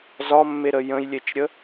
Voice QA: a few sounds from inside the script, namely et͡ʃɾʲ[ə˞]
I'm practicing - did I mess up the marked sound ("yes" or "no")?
yes